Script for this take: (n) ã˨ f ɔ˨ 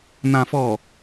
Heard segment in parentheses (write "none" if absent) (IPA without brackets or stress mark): n